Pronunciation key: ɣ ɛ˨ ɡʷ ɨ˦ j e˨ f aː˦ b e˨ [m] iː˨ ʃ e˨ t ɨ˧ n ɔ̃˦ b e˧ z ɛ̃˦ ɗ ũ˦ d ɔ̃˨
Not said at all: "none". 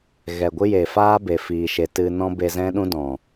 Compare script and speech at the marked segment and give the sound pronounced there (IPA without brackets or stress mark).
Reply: f